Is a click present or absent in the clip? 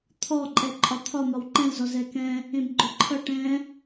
present